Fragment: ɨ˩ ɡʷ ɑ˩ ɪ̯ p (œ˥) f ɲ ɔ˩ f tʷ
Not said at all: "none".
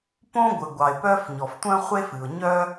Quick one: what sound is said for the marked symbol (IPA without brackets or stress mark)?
œ˥